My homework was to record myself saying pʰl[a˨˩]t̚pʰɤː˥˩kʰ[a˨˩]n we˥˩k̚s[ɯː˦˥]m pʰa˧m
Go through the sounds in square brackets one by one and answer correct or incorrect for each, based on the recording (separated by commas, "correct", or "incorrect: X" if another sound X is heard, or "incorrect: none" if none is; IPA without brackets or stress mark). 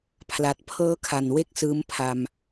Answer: correct, correct, correct